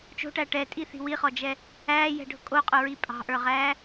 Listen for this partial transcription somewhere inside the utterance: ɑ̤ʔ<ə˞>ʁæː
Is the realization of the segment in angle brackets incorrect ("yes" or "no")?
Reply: no